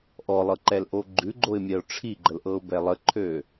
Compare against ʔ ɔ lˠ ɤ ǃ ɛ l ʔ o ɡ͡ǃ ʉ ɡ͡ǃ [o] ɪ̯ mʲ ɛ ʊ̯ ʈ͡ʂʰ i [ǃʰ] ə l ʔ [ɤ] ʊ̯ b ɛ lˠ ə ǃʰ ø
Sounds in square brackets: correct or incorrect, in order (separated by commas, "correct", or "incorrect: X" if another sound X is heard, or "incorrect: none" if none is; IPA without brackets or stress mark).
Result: correct, incorrect: ɡ͡ǃ, correct